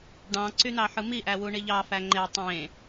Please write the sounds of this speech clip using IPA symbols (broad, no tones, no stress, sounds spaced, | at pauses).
ɖ ɑ̃ ǀ y n̪ ɑ ħ ɯ m i ʔ æ w u ɳ i ʎ ɑ f æ ŋ͡ǃ e tˤ ẽ